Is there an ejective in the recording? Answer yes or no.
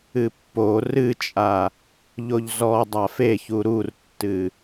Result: yes